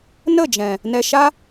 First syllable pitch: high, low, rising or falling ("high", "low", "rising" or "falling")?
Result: falling